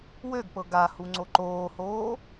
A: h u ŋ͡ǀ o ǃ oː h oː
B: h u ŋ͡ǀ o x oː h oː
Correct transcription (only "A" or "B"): A